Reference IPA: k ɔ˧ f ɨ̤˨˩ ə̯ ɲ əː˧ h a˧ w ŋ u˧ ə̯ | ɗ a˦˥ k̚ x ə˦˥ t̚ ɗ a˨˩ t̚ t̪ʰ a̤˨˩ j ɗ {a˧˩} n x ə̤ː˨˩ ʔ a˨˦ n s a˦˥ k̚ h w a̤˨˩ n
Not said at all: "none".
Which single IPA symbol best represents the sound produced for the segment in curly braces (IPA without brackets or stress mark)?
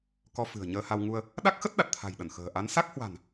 ə˧˩